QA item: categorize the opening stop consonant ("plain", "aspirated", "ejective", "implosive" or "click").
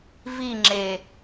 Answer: click